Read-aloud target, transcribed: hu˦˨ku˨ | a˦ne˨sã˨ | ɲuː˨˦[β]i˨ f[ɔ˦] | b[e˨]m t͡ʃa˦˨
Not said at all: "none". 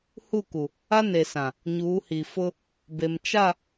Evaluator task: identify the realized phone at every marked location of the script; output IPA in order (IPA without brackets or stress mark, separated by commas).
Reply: h, ʊ˦, e˨